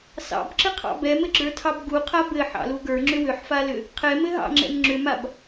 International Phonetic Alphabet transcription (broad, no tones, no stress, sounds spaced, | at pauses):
s ɑ̰ b ǁ ɘ qʰ ɑ̰ b ɛ m ɘ ɡ͡ǁ ə˞ tʰ ɑ b ɡ u qʰ a b ɘ ħ ɑ̰ l u ɡ ə˞ ŋ͡ǁ ʏ w ʏ ħ f a l ʏ | qʰ ɛ m ɘ ɦ ɑ̰ ŋ͡ǁ ɛ̰ m ŋ͡ǁ ʏ m a b